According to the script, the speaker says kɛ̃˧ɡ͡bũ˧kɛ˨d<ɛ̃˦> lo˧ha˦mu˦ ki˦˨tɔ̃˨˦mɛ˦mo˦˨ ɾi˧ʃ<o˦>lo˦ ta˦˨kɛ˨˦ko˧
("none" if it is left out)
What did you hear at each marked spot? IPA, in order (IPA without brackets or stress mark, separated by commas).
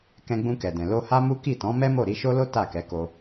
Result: ɛ̃˨, o˦